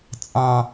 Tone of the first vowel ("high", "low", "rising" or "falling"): low